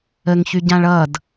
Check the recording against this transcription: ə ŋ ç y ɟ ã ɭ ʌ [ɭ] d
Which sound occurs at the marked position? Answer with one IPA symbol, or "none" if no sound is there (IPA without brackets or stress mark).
none